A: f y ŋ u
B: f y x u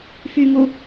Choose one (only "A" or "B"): A